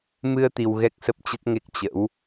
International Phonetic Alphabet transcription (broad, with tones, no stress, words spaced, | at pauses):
mɨ˧ə̯ t̪i˧wɣɛ˦˥k̚sə˦˥p̚ t͡ɕə˦˥t̚ŋe˦˥k̚ t͡ɕə̰˧˥w